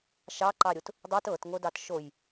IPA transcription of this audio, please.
ʃ ɑ ǃ ɑ ɾʲ o t | dˤ i t ɤ t ŋ o d ɑ t ʃ o j

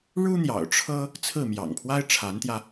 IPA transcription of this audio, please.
ɻ u˥ n̪ j ɑ̰˨˩ ʊ̯ ʈ͡ʂʰ ɤ˥ | t͡sʰ ɹ̩˥˩ m j ɑ̰˨˩ ŋ pʰ w a˥ ɪ̯ ʈ͡ʂʰ a˧˥ n t̪ j ä˧

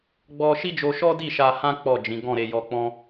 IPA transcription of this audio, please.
ɡ͡b ɔ˧ ʃ i˦ d͡ʒ o˧ ʃ ɔ˦ d i˦˨ ʃ a˧ h ã˦ k͡p ɔ˦˨ d͡ʒ ĩ˨˦ ɡ ɔ̃˦˨ ɾ e˧ j ɔ˧ k͡p ɔ̃˦

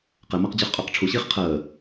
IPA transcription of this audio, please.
q ɛ m a q d͡ʑ ə˞ χ qʼ ʏː q ʈ͡ʂʰ u ɕ iː χ qʰ əː

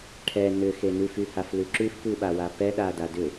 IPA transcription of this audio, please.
ʈʰ ɛ n ʏ x e n ʉ f y h a f l ʉ ǁ ʉ f p ʉ ɓ a w a p ɛ ɗ a d a d ʏ

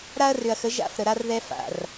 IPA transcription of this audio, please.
ɾ a˦ ɐ̯ r ʏ˨ ɐ̯ x ə˨˦ ʒ a̰˦˨ f ɾ ə˨ ɾ a˦ r ð ɛ˦ f a̰˨ r

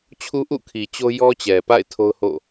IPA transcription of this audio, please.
t͡ɕʰ u˦ ʔ ṵ˦˨ kʰ i˨ t͡ɕ o˦ j ɔ˦ t͡ɕ ɛ˨ p a̰˦˨ ɪ̯ tʰ o˦ ʊ̯ h o̰˦˨

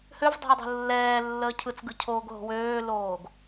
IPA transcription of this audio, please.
h ø v dˤ o̤ ɐ̯ dˤ o̤ lː ɛː lː əː cʰ ɯ t͡s ɡ ɯ cʰ oː ɡ ɦ o̤ w øː l oː ɡ

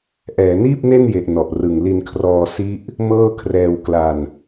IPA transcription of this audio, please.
ʔ ɛː˩˦ n iː˥˩ p̚ n e˥˩ n j e˨˩ ʔ n ɔ˨˩ ʔ r ɯ˨˩ ŋ l i˧ n kʰ r ɔː˧ s i˦˥ ʔ | m ɤː˥˩ kʰ r ɛː˧ w k l a˧ n

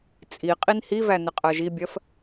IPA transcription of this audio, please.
t͡sʼ i qʼ i n h i v æ n ɪ qʼ ɜ ʒ i bʲ ɜ f

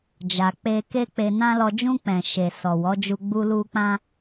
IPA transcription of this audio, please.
d͡ʒ a˨ k͡p e˧ k e˦ k͡p e˧ n ã˦ l ɔ˧ d͡ʒ ũ˧ k͡p ɛ̃˨ ʃ e˨ s ɔ˨ w ɔ˨˦ d͡ʒ u˧ ɡ͡b u˦ l u˦ k͡p ã˦

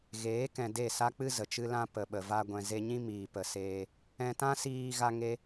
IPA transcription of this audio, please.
ɣ eː˨˦ k ɛ̃˨ d e˦˨ s a˦ k͡p ɨ˦ z ə˨ t͡ʃ ɨ˦ l ã˧ p ə˨ ɓ ə˨ v a˧ ɡʷ ɛ̃˨ z e˧ ɲ ĩ˦ m iː˨ p ə˨ s eː˧ | ɛ̃˧ t ã˦ s iː˧ ɣ a˦ ŋ e˦

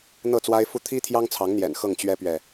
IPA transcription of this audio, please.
n̪ ɤ˥˨ t͡s w a˦ ɪ̯ f u˥˨ t̪ʰ i˦ t̪ʰ j ɑ˦ ŋ t͡sʰ ɑ˨˦ ŋ n̪ j ɛ̰˨˩ n x ɤ˥˨ ŋ t͡ɕ ɥ ɛ˦ p ɥ ɛ˨

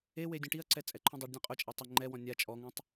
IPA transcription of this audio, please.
e w e dʲ õ ʈ i ɐ̯ ǀ ɛ t͡sʼ ɛ ǃʰ ũ dˤ e ɖ dʲ ɔ̃ qʼ ʊ t͡ʃʼ a tˤ ʊ ŋ͡ǃ ɛ w ɔ̃ nʲ a t͡ʃʼ ɔ ŋ õ tˤ

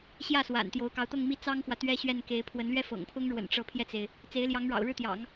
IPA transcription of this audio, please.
ɕ j ä˥˩ s w a̰˨˩ n t̪ j o˧˥ ʊ̯ k ɑ˧˥ ʊ̯ t̪ ɤ˥˧ ŋ m i˥˩ t͡s ɑ˥ ŋ x w ä˨ t̪ ɥ ɛ˥ ɕ ɥ ɛ˥˩ n k e˧˥ ɪ̯ pʰ w ə˧˥ n l ɥ ɛ˥ f ɤ̰˨˩ ŋ pʰ ʊ˥ ŋ ɻ w ə̰˨˩ n ʈ͡ʂ ɤ˧˥ pʰ j ɛ˧ t͡s e˩ ɪ̯ | t͡s e˧˥ ɪ̯ l j ɑ˧˥ ŋ ɻ ɑ̰˨˩ ʊ̯ ɻ ɻ̩˥˩ t̪ j ɑ̰˨˩˦ ŋ

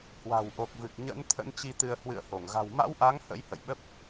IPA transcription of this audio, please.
h w a̤˨˩ w ʔ o˨˩ k̚ v ɨ˨˩ k̚ ɲ ə̰˧˥ n t̪ʰ ə̰˧˥ n t͡ɕ i˧ t̪ ɨ˧ ə̯ h w ɨ̰˧˨ ə̯ h o˧˩ ŋ ɣ a̤˨˩ w m a̰˧˥ w ʔ a˨˦ ŋ h ə̰˧˥ j h ə̰˧˨ j ɓ ə˦˥ p̚

